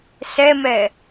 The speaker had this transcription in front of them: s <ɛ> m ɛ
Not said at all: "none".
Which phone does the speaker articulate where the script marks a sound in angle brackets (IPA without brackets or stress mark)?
ɛ